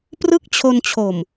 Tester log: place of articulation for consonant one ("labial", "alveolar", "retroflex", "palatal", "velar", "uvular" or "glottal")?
labial